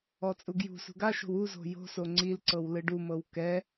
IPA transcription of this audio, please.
ɔ t͡sʼ u ɡ j ṳ s ṳ ɡ a ʃ o̤ w u z o̤ j o̤ s o ŋ͡ǀ i l ǀ ɤ w l ɯ ɖ u m ɤ w k ɛ

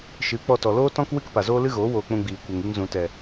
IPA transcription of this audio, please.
ʃ ɨ˨˦ k͡p ɔ˧ t ɔ˨ l oː˦ t ɔ̃˦ k w ɨ˦ k p a˨ z oː˦ l ɨ˦ ɣ oː˨˦ w oː˧ k͡p ũ˧ ɡ͡b iː˨ kʷ e˨ ŋ i˧ ŋ z ũ˨ t ɛ˨

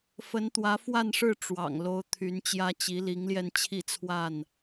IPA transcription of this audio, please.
f ə˨˦ n t̪ w ä˨˦ f w a˥˨ n ʂ ɻ̩˥˨ ʈ͡ʂ w ɑ̰˨˩ ŋ l o˨˦ ʊ̯ t̪ʰ y˨˦ n t͡ɕ j ä˦ t͡ɕ i˨˦ l i˨˦ ŋ l j ɛ˧ n t͡ɕʰ i˥˨ t͡sʰ w a˥˨ n

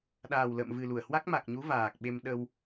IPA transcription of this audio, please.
ɗ aː˨˩ w l ə̰ː˧˨ m v ɨ˨˩ l u˧˩ ə̯ h w a˦˥ k̚ m a˨˩ k̚ ɲ u˨˦ v aː˨˩ k̚ ɓ e˧ m ɗ ə˧ w

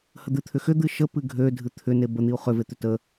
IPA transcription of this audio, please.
h ə d̪ ɨ t̪ʰ ʏ x ʏ d̪ ɨ ʃ ə p ɨ ɡʱ ø dʱ ɨ t̪ʰ ʏ n e b ə n̪ i u̯ χ ʏ v e t̪ ʏ t ə

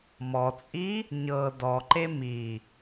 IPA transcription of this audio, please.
m ɔ t͡sʼ i | ɲ ɤ d ɔ ǃ e m i

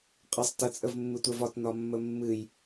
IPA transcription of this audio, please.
qʼ ə sˤ t ə t͡sʼ ə v mː ɨ tʷ ɛ v ɒ t n ɒ mː ə mː ɨ j

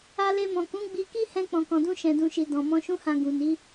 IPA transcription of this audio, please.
a˧ l e˧ m ɔ̃˨ k ũ˨˦ ɡ͡b i˧ k i˦ h ɛ̃˦ k͡p ɔ̃˧ k ɔ̃˧ d ũ˦ ʃ ɛ̃˧ d ũ˧ ʃ i˧ d ɔ̃˨ m ɔ̃˧ ʃ ũ˦ h ã˧ ɡ ũ˨ n i˨˦

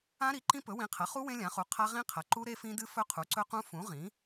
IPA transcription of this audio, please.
ã˦˥ ɾ i˩˥ ǃ ĩ˦˥ p ɵ˩˥ w ĩ˩˥ qʰ ɐ˩˥ χ u˦˥ w ẽ˦˥ lʲ ã˩˥ χ u˩˥ qʰ a˦˥ ʁ ĩ˦˥ qʰ ɐ˩˥ ǃ u˦˥ ɾ e˦˥ f ĩ˦˥ d ɨ˦˥ f ɵ˦˥ qʰ u˩˥ ǀ ɵ˦˥ q ũ˦˥ f ũ˩˥ ʁ ĩ˩˥

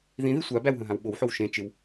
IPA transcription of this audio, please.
ð ĩ ð i sʷ a b æ w ɦ ə̃ ɦ ã w ɓ o w ħ o w ʃ ẽ t͡ʃ ɪ w

